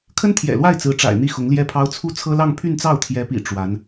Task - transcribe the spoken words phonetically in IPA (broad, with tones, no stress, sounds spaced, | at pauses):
kʰ ə˥ n t̪ʰ j ɛ̰˨˩ l w a˥˩ ɪ̯ t͡s ɹ̩˧˥ ʈ͡ʂ a̰˨˩ ɪ̯ n̪ i˥˩ x ʊ˧˥ ŋ l j ɛ˥ pʰ ɑ˥ ʊ̯ t͡sʰ u˥ t͡sʰ ɤ˥ l ɑ˥˧ ŋ pʰ y˥˧ n t͡s ɑ˥˩ ʊ̯ t̪ʰ j ɛ˧˥ p ḭ˨˩ ʈ͡ʂ w a˧˥ n